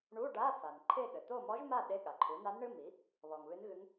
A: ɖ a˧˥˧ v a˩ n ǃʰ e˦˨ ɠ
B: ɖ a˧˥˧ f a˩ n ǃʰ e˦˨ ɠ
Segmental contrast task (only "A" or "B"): B